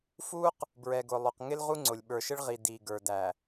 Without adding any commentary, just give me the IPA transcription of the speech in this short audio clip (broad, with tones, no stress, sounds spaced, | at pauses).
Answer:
f u˦ q | b ɹ ɛ˨ ɡ ʊ˨ lˠ ʊ˨ q ŋ ɪ˦ l ʁ u˦ ŋ͡ǀ ʊ˨ lʲ ɓ ə˞˨ ʃ ɪ˦ ɭ ʁ i˨ d i˨ ɡ ə˞˨ d æ˨